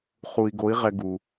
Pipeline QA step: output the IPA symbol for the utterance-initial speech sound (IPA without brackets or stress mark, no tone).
χ